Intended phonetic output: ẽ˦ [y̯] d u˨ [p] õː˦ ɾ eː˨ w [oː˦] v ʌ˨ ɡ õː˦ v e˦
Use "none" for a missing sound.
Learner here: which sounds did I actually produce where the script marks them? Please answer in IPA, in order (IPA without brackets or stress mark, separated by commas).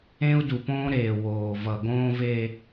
u̯, p, oː˨